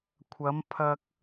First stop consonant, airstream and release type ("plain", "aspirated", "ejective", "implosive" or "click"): aspirated